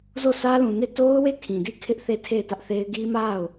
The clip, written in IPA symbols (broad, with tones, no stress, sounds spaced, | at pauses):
z o˦˨ s ä˦ l ũ˨ n e˦˨ t o˦ ʊ̯ w e˦˨ kʰ ĩ˨ d i˦˨ kʰ ɪ˦ ʔ θ e˦˨ tʰ e˦˨ ɪ̯ t ä˦ ʔ θ e˦ ɪ̯ ɡ i˦ m a˦˨ ʊ̯